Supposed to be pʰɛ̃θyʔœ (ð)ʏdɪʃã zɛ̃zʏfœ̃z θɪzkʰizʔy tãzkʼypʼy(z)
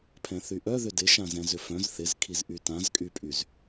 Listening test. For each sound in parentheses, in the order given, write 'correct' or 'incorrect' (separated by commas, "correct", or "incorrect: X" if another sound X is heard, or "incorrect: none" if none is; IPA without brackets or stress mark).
correct, correct